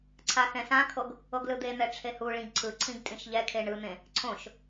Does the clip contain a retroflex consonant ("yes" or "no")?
yes